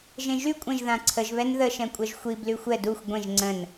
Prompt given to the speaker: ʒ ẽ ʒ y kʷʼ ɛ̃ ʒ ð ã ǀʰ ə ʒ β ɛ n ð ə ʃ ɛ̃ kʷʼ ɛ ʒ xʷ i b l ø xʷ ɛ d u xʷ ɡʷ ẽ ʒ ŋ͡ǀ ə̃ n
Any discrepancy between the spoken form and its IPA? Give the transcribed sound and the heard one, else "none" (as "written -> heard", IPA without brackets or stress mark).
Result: ø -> y